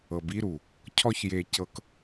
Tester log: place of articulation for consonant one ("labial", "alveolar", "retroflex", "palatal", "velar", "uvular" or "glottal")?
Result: labial